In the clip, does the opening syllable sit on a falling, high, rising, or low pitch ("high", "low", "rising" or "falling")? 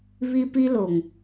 high